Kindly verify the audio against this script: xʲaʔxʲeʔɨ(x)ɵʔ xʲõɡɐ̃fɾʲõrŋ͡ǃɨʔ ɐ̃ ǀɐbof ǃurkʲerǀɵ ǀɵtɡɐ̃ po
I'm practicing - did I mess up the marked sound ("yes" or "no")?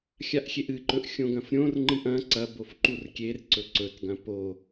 yes